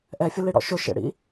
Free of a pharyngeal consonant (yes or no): yes